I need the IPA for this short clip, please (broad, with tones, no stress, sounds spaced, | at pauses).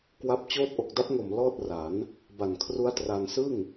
k w a˦˥ p̚ t͡ɕ oː˥˩ t̚ ʔ o˨˩ k̚ d a˦˥ p̚ ŋ o˨˩ m l ɔː˥˩ t̚ r a˩˦ n | b a˨˩ n kʰ r u˦˥ a̯ t r a˧ n s ɯ˥˩ ŋ